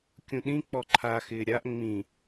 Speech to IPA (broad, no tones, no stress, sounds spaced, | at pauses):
kʲ ũ ɗ ĩ k͡p ɔ ǃʰ a x ɪː ɾʲ a ʔ ŋ͡m ĩ